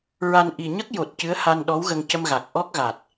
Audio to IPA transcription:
ɹ a˧ n ʔ i˨˩ ɲ ə˦˥ k̚ j o˨˩ t̚ c ɨ˧˥ ə̯ h a˧ n ɗ ɔ˧˥ w ɣ ə˧ ŋ c ə˧ m ɣ a˨˩ k̚ ʔ ɔ˦˥ k̚ ɣ a˨˩ t̚

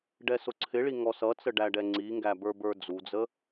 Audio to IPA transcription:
ɖ ɛ s ʊ ǀʰ ɪ ɭ i ŋ ɔ s ʌ t͡s ə ɖ æ ɖ ɛ ŋ͡ǀ i ŋ ɡ æ b ə˞ b ə˞ d͡z u d͡z ə

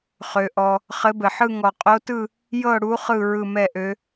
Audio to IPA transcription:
χ ø˨ ʔ ɔ˨ | χ ɘ˧˥ b ɘ˨ ħ ɯ˥˧ ŋ ɔ˨ qʼ o˧˥ t ɯ˥˧ | j ɤ˥˧ ɽ u˧˥ χ ɯ˥˧ ɹ ɯ˥˧ m ɛ˥˧ ʔ ø˧˥

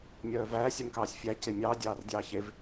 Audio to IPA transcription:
mʲ œː v æː sʲ ø m k ɑː sʲ fʲ æ c e mʲ ɑː dʲ ɑː r dʲ ɑː ç e v

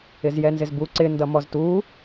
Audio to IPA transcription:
ɪ z j ɛ n z ɪ z b u ǀ ɪ n d ʌ m ɔ z t u

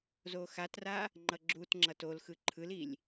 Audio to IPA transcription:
z o x a t r a | ŋ͡ǃ ʌ ɡ͡ǁ u t ŋ͡ǁ ʌ t o l x ɯ ǃʰ ɯ l i lʲ

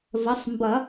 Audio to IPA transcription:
v ə˩˧˩ sˤ m b ʌ˨˩˦

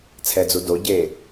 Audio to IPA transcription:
t͡sʰ ɛ d͡z u d o ɟ e

